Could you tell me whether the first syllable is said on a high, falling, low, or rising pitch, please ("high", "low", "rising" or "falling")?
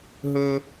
high